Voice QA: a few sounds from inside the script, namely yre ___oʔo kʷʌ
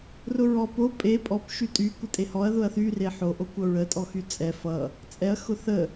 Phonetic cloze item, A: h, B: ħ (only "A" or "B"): B